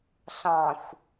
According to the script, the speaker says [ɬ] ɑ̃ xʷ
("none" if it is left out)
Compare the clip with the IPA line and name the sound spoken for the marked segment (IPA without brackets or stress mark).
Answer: ɬ